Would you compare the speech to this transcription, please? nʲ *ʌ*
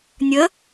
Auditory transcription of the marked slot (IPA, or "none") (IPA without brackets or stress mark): ə